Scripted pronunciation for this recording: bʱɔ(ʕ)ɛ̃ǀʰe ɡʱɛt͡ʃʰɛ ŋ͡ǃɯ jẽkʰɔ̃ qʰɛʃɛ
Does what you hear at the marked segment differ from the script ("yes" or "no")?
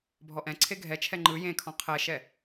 yes